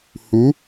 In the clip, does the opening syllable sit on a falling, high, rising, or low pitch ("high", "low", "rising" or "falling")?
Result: rising